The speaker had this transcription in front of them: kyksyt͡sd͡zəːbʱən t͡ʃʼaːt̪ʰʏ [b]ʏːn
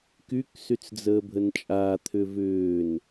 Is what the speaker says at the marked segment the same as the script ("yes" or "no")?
no